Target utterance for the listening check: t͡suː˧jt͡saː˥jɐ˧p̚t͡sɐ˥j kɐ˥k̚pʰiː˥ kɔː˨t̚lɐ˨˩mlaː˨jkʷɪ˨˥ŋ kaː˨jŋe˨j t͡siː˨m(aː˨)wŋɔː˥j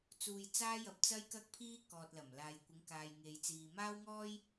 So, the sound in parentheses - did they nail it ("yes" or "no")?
no